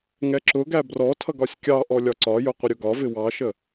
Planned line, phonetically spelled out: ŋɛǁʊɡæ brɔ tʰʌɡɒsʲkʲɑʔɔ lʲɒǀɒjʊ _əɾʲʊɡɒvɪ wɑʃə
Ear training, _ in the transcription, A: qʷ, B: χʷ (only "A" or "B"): A